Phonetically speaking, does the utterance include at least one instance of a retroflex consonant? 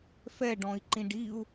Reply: yes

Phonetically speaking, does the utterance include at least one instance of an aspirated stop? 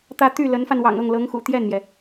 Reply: no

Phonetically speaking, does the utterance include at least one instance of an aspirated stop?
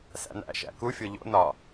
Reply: no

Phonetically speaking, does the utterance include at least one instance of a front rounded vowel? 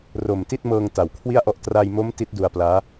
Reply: no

